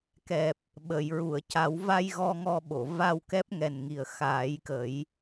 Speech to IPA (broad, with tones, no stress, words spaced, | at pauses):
kɛ˨˩p̚ | ɓə˨˩˨j ɹu˨˩˨ə̯ca˨˩˦w va˧j ɣɔ˧ŋɔ˧ɓo˨˩˨ va˧wkɛ˦˥p̚ŋɛ˨˩nŋi˨˩ə̯ xaː˨˩˦jkə˨˩˦j